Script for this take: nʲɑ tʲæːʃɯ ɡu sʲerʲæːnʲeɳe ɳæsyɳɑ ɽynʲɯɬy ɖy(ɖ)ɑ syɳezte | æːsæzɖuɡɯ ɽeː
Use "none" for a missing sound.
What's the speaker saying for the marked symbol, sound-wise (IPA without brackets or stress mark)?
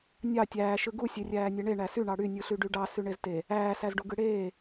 ɖ